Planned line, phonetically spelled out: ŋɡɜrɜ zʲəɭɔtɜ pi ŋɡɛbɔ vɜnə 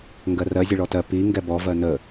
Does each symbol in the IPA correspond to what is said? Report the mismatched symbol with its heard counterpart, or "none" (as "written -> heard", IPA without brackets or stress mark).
none